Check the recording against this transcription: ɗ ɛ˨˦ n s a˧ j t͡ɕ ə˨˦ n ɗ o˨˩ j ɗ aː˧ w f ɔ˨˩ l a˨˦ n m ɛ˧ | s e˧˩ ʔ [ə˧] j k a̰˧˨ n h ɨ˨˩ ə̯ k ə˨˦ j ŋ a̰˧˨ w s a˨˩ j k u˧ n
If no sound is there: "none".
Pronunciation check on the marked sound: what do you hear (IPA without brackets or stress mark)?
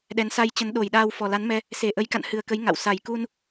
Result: ə˨˦